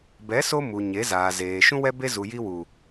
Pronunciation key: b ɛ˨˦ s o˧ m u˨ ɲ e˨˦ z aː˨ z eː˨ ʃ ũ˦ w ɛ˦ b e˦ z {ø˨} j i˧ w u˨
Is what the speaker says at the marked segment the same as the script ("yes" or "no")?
no